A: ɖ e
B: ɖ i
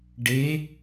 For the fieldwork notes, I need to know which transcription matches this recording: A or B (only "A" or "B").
A